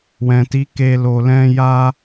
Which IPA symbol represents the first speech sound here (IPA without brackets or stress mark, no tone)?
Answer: w